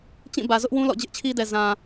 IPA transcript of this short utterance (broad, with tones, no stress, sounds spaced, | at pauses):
t͡ɕ ĩ˦˨ b ä˨ z ʊ˦ ʔ w ũ˦ l ɔ̰˦˨ d͡ʑ ɪ˦ ʔ t͡ɕʰ i˦ d ɛ˨ z ã˨